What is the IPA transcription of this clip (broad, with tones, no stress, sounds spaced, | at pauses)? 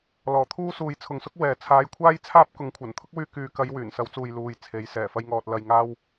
l ɔː˨˩ t̪ʰ uː˥ s uː˨ j t͡sʰ ʊ˨ ŋ s ʊ˥ k̚ w ɛː˨ t͡sʰ aː˨˧ j kʷʰ aː˥ j t͡sʰ aː˥ p̚ k ʊ˨˥ ŋ kʷʰ ɐ˨˩ n t̪ʰ ʊ˥ k̚ w yː˧ k yː˨ k ɐ˨˧ j w yː˨˩ n s ɐ˨˥ w t͡s uː˨ j l uː˨ j t͡sʰ e˨˥ j s ɛː˨˩ f ɐ˥ j ŋ ɔː˧ t̚ l ɐ˨ j ŋ aː˧ w